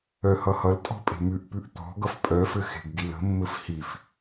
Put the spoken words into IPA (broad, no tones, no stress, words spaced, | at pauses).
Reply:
œhʌhʌltʼɔ̤ pʼe̤mʉʔpʉʔ t̪ɔ̤ ɡʌfpʼœfɘ xe̤ɡdilə̤mːɘf hif